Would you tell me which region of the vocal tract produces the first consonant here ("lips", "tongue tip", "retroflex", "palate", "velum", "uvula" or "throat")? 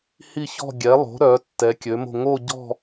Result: throat